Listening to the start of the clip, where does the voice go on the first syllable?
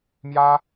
high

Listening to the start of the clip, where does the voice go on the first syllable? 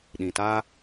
low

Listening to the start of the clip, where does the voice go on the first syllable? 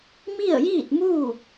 falling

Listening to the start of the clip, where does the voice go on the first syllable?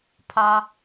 low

